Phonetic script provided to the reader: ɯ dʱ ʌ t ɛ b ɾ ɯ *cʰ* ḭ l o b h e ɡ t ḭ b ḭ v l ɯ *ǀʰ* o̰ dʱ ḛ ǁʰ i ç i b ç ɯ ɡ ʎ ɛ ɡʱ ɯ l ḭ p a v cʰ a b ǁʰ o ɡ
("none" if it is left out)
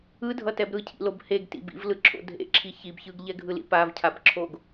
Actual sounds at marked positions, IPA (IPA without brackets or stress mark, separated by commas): cʰ, ǁʰ